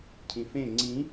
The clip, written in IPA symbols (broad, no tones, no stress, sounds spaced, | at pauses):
cʰ ĩ f ẽ ŋ͡ǀ ĩ